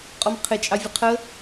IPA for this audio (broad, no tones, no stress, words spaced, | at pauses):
qʼɔmqʰɪ t͡ʃʼɑvʲəqʰə